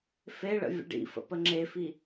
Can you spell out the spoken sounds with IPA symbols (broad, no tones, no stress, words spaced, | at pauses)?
feɭə̰ vʲə̰ɖḭfə̰ pəŋ͡ǁefi